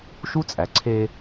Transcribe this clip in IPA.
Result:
ʃ u˦ t͡sʼ æ˨ ǀʰ e˦

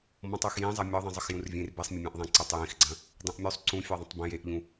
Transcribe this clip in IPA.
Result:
m ɔ̃ tˤ œ x j ĩ zˤ ɐ mʲ ɔ ðˤ ĩ zˤ ə x j ũ r vʲ ẽ r b e sˤ mʲ ə mʲ ẽ ʔ ðˤ ẽ ǀ ə tˤ j ĩ x ɡ͡ǀ ɐ̃ | dˤ ẽ ʔ mʲ u sˤ ǀ ũ fʲ œ ðˤ ɐ̃ tˤ b ẽ j e ʔ ʎ ũ

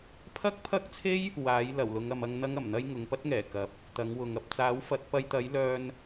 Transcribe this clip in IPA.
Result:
pʰ ɐ˥ k̚ pʰ ɐ˥ k̚ t͡sʰ e˥ j | w aː˨˥ j l ɐ˨˩ w l ʊ˨˧ ŋ ɐ˨ m ɐ˧ ŋ n̪ ɐ˥ ŋ ɐ˨˩ m n̪ ɐ˥ j ŋ ʊ˨˧ ŋ p ɐ˥ t̚ ŋ ɛː˨˩ k ɐ˨˥ p̚ | t̪ ɐ˨˥ ŋ w ʊ˨ ŋ ɐ˨ p̚ t͡s aː˨˥ w f ɐ˨˥ t̚ p ɐ˧ j t̪ ɐ˨˥ j l œː˧ n

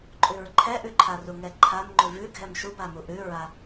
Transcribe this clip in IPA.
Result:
ǃʼ ʉ ɹ ǃʰ ɛ ʔ ʉ ǃʰ a r u ŋ ɛ ǃʰ a m ŋ͡ǃ ʉ v ʉ ɡʱ ɛ m ʃ u b a m u ʔ ʉ ɹ a

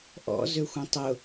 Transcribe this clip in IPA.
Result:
ʔ ɔ̰ z ø xʷ ɛ̃ tˤ ʊ

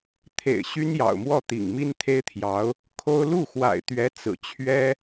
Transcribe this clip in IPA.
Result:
t̪ʰ ḛ˨˩ ɪ̯ ɕ y˥ n j ɑ̰˨˩ ʊ̯ m w ɔ˥˩ t̪ ḭ˨˩ ŋ m i˥ n t̪ʰ e˥ ɪ̯ t̪ʰ j ɑ˧˥ ʊ̯ | kʰ o˥ ʊ̯ l u˥˩ x w a̰˨˩ ɪ̯ t̪ ɥ ɛ˧˥ t͡s ɹ̩˨˩ t͡ɕʰ ɥ ɛ˥

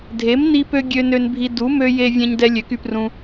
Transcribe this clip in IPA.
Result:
dʱ e˩˥ m n i˧ p ø˧ ɡʲ ø˧ n ø˧ n bʱ i˧ d u˩˥ m ø˧ j e˧ vʲ ɛ̃˧ ɲ d ɛ˧ lʲ ø˩˥ k y˧ p r ũ˧

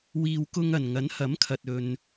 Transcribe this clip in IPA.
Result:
w iː˨ w k ʊ˧ ŋ ɐ˨˩ n ŋ ɐ˨˥ n h ɐ˨˥ m kʰ ɐ˨ t̚ ɵ˨ n

